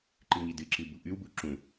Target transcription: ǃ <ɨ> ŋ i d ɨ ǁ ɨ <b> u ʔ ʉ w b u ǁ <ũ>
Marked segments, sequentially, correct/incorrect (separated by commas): correct, correct, correct